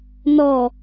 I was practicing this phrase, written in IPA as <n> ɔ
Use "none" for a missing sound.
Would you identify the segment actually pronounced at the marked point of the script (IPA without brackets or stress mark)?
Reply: n